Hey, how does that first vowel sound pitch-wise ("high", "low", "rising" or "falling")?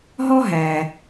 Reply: high